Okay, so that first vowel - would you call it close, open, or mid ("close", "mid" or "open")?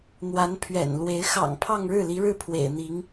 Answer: open